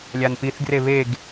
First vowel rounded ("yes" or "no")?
no